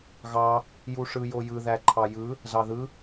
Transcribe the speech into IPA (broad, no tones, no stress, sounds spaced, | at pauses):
ɣ ɑ | j u ʂ ɯ j o j ɯ ð æ ǃʰ ɑ j ɯ | z ɑ ð ɯ